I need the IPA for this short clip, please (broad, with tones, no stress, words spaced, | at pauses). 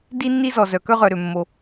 di˥nːi˥zɔ˩ zœ˩ kœ˥ʁœ˩ɾø˩mːo˩